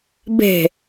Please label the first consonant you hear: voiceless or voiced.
voiced